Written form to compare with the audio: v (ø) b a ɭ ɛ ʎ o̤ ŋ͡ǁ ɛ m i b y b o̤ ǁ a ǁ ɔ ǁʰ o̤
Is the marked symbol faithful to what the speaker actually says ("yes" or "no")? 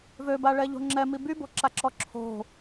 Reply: yes